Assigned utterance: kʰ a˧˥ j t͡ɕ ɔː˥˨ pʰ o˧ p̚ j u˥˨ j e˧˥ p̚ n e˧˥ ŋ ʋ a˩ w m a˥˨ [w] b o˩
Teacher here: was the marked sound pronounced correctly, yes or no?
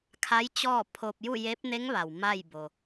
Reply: no